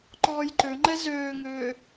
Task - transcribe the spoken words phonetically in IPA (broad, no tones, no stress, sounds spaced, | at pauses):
ǃ ɔː j ǃ ø ŋ͡ǃ ɛ z øː ŋ øː